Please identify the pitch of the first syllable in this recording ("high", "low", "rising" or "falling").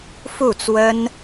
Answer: falling